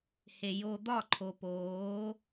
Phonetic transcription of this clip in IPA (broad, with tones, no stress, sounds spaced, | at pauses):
h e˨ j o˧ d̪ ɒ˦˨ ǃʰ o˨ p oː˨˦